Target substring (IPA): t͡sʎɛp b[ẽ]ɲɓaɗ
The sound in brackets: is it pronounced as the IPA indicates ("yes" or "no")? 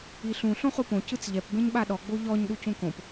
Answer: yes